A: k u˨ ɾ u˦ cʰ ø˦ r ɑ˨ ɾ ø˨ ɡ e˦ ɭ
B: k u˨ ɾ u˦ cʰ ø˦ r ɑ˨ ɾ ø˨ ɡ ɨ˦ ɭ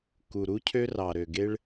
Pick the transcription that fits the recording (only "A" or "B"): A